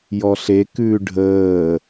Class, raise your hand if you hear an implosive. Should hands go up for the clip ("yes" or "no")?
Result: no